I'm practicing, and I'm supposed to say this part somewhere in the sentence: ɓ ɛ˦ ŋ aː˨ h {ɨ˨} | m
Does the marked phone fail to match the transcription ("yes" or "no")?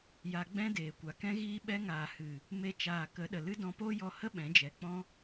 no